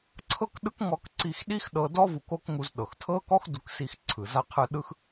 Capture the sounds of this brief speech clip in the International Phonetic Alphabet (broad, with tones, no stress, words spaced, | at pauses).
ǀʰɤ˥kɗɯ˥k ŋɔ˧k ǀi˧xɗi˥x ɗɤ˧dɔ˥ vu˧ko˥kŋu˧z ɗɤ˩xtʰɤ˥ kɔ˥x du˧ksi˧xǀʰɯ˩ za˧qʰɯ˧ ɗɯ˧x